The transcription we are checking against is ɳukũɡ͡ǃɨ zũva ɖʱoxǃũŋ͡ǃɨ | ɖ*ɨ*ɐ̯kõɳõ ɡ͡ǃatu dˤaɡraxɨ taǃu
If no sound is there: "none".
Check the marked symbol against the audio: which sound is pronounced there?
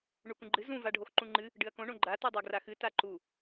ɨ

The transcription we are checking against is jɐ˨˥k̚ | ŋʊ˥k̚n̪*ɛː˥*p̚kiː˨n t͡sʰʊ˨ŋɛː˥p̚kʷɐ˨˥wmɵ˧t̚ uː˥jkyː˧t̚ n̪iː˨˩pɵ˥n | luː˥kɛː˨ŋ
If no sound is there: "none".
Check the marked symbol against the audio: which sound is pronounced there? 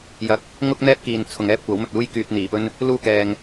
ɛː˥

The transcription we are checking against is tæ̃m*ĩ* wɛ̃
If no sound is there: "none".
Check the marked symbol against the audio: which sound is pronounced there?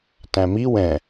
i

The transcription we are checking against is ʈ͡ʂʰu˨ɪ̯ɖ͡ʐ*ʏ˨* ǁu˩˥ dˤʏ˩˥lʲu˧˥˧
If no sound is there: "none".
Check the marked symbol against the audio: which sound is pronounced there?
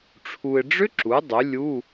ʏ˦˥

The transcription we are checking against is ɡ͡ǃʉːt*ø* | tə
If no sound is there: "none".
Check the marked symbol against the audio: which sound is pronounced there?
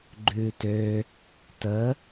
ø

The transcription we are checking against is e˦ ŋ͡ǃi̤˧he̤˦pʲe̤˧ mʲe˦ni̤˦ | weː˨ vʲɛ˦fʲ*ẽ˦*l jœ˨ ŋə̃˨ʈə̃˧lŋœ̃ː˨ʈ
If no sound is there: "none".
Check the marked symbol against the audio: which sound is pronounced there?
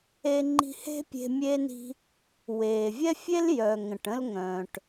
e˦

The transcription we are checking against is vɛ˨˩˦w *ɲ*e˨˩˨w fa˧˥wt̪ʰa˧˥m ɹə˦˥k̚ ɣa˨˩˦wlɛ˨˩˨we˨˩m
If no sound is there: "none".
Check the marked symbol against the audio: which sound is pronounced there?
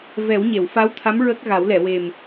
ɲ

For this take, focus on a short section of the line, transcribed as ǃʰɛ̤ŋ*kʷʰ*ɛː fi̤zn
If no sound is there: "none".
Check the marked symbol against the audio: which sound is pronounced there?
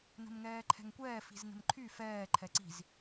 kʷ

